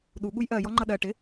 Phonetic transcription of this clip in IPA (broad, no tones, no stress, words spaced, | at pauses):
ɗuɠuj ʔɜjɔ ŋ͡ǃʌɗɜ ʈɪ